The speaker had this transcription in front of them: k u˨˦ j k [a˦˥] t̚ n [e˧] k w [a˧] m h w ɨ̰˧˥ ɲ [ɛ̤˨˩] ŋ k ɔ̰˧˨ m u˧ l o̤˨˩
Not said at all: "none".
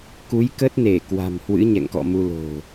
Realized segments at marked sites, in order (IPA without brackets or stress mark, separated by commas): ə˦˥, e˧˩, a̤˨˩, ɛ̰˧˨